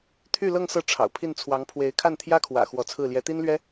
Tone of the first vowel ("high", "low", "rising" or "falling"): falling